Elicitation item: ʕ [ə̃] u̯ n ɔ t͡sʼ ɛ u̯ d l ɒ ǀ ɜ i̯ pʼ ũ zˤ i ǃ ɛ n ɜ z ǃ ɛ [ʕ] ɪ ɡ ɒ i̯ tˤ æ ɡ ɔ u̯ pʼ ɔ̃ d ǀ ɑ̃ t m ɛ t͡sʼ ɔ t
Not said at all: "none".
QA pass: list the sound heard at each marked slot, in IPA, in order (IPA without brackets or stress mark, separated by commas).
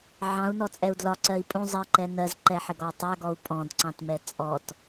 ɑ̃, ħ